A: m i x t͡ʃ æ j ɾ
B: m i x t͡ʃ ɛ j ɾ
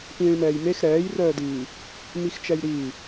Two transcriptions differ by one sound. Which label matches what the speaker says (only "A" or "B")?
B